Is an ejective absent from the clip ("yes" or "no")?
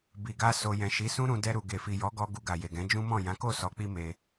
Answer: yes